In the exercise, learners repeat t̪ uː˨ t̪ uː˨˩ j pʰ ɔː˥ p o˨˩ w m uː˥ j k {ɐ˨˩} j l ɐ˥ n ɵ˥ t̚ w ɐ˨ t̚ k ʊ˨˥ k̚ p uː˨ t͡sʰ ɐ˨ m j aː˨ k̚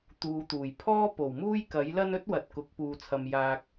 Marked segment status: incorrect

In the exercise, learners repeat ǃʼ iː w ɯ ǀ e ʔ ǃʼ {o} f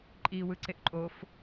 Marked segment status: correct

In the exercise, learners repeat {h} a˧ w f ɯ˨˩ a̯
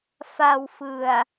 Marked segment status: incorrect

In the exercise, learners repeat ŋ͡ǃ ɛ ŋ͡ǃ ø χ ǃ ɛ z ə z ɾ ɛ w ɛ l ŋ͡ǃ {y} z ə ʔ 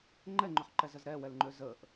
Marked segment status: incorrect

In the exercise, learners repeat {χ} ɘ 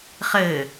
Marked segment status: correct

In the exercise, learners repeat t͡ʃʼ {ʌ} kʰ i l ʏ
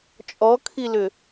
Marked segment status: incorrect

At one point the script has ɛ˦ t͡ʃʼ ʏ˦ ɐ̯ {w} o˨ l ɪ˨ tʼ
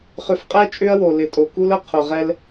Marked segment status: correct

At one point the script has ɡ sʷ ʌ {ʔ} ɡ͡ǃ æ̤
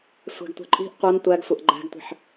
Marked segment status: correct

